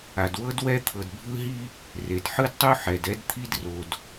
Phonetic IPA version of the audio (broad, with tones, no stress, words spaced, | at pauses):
a˩dwɤ˥d wɛ˥ t̪ʰɤ˩dbʱɯ˥ɦi˥ | re˩dħɯ˥dtˤu˥ ħɛ˩dɛ˥dt̪ʰi˥dro˩d